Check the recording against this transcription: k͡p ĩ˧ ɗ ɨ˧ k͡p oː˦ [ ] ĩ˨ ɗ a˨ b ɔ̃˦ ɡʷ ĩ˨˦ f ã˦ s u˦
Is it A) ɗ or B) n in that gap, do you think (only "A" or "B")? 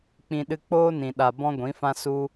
B